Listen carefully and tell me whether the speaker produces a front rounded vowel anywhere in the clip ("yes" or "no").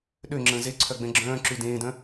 yes